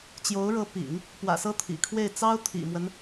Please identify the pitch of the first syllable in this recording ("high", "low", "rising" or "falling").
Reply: rising